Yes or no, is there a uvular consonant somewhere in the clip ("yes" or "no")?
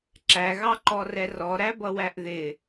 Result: no